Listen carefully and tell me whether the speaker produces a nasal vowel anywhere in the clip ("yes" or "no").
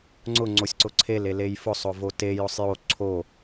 no